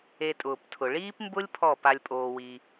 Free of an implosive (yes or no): yes